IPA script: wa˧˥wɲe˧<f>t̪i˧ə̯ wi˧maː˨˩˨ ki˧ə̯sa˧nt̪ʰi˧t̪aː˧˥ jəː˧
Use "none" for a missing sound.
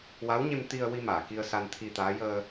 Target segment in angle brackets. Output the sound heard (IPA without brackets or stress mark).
m